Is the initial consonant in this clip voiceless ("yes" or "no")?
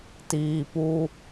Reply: yes